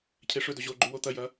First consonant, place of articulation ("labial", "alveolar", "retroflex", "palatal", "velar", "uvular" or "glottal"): palatal